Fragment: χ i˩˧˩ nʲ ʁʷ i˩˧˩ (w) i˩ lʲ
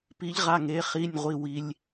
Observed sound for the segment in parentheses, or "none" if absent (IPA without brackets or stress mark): w